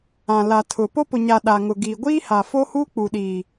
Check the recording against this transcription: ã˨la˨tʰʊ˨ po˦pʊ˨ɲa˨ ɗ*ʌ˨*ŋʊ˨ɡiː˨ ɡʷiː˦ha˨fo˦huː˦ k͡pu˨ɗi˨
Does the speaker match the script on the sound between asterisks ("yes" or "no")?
no